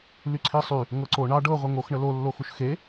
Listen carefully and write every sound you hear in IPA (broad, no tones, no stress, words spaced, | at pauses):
lyǀʰisˤy | ŋɤǀo ɳɑ ɖɤʁʷe ŋoxɳə lolːoxuʃ xe